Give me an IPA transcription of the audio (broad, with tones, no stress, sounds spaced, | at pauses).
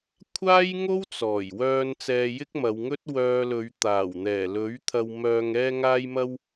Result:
kʷʰ aː˥ j ŋ o˥ w t͡s ɔː˨˩ j w œː˧ n t͡s ɛː˧ j ɪ˥ k̚ m ɐ˨˧ w ŋ ɵ˥ t̚ w œː˧ l ɵ˨˧ ɥ t̪ aː˨˩ w n̪ ɛː˨˩ l ɵ˨˥ ɥ t̪ʰ ɐ˧ w m œː˧ ŋ ɛː˧ ŋ aː˧ j m ɐ˧ w